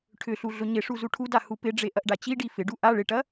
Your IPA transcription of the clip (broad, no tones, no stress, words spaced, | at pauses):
ʈʰʏɬu ɮʊɲɪʂu zuʈʰuda hupɪɖ͡ʐe ʔɐʔɖat͡ɕiɖi fɪɖu ʔa ɭɪʈɐ